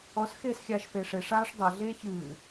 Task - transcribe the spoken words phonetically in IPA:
ɔ s x eː s xʲ aː ʃ f eː ʂ e ʂ aː ʂ dˤ a ɮ eː ç ɨː

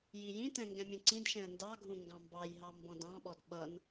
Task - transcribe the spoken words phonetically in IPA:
j i j ĩ t ɛ̃ ŋ ɡ ɛ̃ mʲ ũ ǀ ĩ d ʃ ɛ̃ ə̯ n d ɑ ɡʱ ũ ŋ ɡ ɑ̃ m b ɑ j ɦ ɑ m b ɔ̃ d ɑ̃ ɓ ɔ d ɓ ʌ n

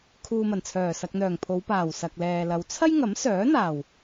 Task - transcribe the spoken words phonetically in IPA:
kʰ uː˨ m ɐ˨˩ n t͡sʰ œː˨˩ s ɐ˨ k̚ n̪ œː˨˩ ŋ pʰ o˨˧ w p aː˨˩ w s ɐ˨ k̚ l ɛː˨ l ɐ˨˧ w t͡sʰ ɐ˥ j ŋ ɐ˨˥ m s œː˨˥ n̪ aː˨˩ w

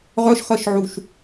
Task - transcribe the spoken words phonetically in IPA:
ʁ œ ʃ χ ɜ ʃ ʕ u ʃ

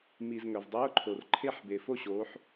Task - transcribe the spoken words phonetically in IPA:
m i˨ z ŋ œ˨ v dˤ ʉ˧˥˧ ʊ̯ ǃʰ o˨ r ǃʰ e˥˧ ħ b e˨ f o˥˧ ɕ oː˨˦ ħ

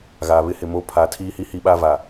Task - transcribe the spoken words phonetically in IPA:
ɣ aː˨ β ɪ˦ h ɪ˨ m o˦ pʰ a˨˦ tʰ iː˦ h i˦ h i˦ ɓ a˦ v a˨

